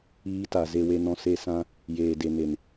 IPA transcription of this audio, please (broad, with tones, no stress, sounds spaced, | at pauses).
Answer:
iː˧ t a˨ z e˨ w e˨ n ɔ̃˨ s e˧ s ã˧ | j eː˨ d e˨ n e˨ n